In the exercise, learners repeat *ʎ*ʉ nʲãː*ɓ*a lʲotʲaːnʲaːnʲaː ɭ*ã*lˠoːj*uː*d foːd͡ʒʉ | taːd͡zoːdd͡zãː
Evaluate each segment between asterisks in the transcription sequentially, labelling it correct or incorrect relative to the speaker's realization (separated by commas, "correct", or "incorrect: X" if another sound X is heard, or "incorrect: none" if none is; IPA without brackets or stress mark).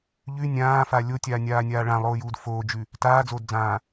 correct, incorrect: f, correct, correct